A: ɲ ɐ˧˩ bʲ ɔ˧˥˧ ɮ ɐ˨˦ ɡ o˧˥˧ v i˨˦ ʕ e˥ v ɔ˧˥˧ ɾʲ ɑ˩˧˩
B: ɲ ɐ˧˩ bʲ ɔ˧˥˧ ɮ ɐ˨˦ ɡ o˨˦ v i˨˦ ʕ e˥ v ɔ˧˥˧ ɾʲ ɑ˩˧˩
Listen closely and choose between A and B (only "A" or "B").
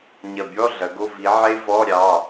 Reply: A